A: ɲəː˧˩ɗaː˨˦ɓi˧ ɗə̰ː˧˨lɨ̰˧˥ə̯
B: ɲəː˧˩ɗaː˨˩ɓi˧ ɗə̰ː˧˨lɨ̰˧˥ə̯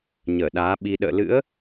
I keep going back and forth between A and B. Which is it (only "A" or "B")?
A